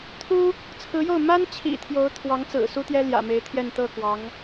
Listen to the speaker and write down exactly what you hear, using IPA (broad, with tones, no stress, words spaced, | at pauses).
t̪ʰu˥ | t͡sʰɹ̩˧˥jo˥˩ʊ̯ ma˥nt͡ɕʰḭ˨˩ t̪ʰjo˧˥ʊ̯ t̪ʰwɑ˧˥ŋt͡sɹ̩˨˩ su˥t̪jɛ˥ ljä̰˨˩me˧˥ɪ̯t̪ʰjɛ˥˧n t̪ɤ˥˩kwɑ˧˥ŋ